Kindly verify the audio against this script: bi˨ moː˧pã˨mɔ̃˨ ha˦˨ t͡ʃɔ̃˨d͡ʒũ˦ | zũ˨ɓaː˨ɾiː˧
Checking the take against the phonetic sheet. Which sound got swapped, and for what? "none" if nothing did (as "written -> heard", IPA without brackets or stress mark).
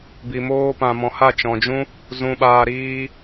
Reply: none